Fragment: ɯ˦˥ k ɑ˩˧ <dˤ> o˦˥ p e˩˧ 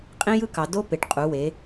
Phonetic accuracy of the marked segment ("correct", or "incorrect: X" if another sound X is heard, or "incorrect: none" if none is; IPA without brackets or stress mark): incorrect: d